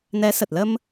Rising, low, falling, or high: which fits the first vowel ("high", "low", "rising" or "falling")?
rising